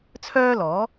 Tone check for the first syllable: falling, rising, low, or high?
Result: high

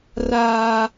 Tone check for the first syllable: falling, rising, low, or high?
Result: high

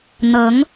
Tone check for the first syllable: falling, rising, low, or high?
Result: rising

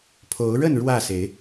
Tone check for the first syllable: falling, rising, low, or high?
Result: rising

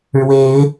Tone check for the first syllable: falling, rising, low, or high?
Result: rising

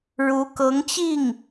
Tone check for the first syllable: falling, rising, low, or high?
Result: rising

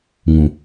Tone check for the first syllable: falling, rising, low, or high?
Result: low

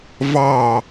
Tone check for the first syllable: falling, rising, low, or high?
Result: falling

